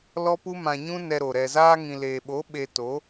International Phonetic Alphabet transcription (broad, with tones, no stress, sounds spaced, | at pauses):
l ɔ˦ p u˦ m ã˧ ɲ ũ˦ n ɛ˧ ɾ o˨ ɾ ɛ˨ z aː˧ ŋ ĩ˨ l eː˨ ɓ o˨˦ ɓ e˧ t o˨˦